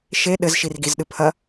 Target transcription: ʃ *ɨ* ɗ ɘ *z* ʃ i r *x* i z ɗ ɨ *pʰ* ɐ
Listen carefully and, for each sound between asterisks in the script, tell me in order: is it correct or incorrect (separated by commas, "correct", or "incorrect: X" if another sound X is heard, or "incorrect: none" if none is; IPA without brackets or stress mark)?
incorrect: e, correct, incorrect: ɡ, correct